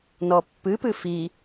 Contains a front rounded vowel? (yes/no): no